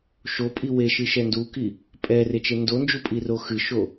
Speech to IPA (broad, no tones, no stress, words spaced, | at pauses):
ʃopʼi weʃɨʃɛ nduki | pʼɛret͡ʃe ndond͡ʒupʼiro xɨʃo